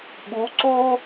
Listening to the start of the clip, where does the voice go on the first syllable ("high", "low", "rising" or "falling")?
rising